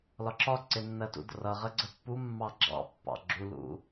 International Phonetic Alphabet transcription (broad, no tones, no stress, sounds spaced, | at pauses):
l ɒ ǁ ɒ ǀ ɪ nː ɜ t ṵ d r ʌ ʁ ə ɡ͡ǀ ə pː u mː ɑ ɡ͡ǁ ɑ̰ pː ɑ̰ ɡ͡ǁ u l ṵ